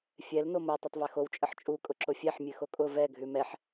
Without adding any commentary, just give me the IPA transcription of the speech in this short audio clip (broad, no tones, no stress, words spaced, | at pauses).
fʲɛl nomo tˤɛtˤvɛxow t͡ʃʼəħt͡ʃʼu kʼʊǁʊfʲɛħ mʲʉxokʼʊ vɛ ɡʱʉmɛħ